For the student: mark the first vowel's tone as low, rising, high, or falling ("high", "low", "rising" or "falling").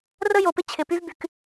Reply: high